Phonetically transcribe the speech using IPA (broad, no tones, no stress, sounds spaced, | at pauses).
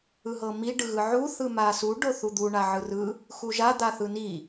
ɯ ɦ ɤ m i ɖ ɯ ɣ ɯ ʕ u θ ɯ m a s u ɖ o θ u d̪ u ɳ a ʕ ɯ r ɯ | x u ʒ a d̪ a θ ɯ n i